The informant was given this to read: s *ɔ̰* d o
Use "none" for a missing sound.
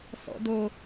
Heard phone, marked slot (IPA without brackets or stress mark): ɔ̰